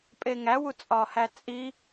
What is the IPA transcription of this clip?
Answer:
pʼ e ŋ æ w u t͡sʼ ɒ h æ t͡sʼ i

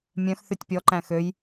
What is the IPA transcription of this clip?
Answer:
mʲ œ̃ x θ y tʲ pʲ ɔ ǃ æ̃ x ø j

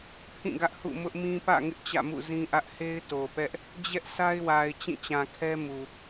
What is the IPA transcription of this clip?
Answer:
pʰ ĩ˦˨ ɡ ä˦ ʔ h ṵ˦˨ m ʊ˦ ʔ m ĩ˦ p ä̰˦˨ ŋ ɪ˦ ʔ t͡ɕ ä̰˦˨ m ṵ˦˨ z ĩ˦ ʔ ä˦ ʔ h e˦ ɪ̯ t o˨ p ɛ˦ ʔ | d͡ʑ ɛ˦ ʔ s a˦ ɪ̯ w a˨ ɪ̯ t͡ɕ ĩ˦˨ t͡ɕ ã˨ kʰ ɛ˦ m u˨

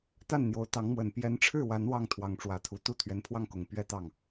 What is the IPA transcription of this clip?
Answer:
t̪ a˥˩ n n̪ j o˧˥ ʊ̯ t̪ ɑ˧˥ ŋ m w ə˨˩ n p j ɛ˧˥ n ʈ͡ʂʰ ɻ̩˥˩ w a˧˥ n w ɑ˥˩ ŋ t̪ʰ w ɑ˧˥ ŋ ʈ͡ʂ w ä˧˥ t̪ʰ u˨˩ t̪ u˥˩ t̪ʰ ɥ ɛ˧˥ n pʰ w ɑ˥˩ ŋ k ʊ˨˩ ŋ p ɥ ɛ˥˧ t̪ ɑ˥˩ ŋ

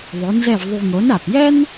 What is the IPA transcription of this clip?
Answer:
ðˤ ʊ˩˥ n z ɛ˥˩ v ðˤ u˧ ŋ o˩˥ n a˩ p j ɛ˥ n

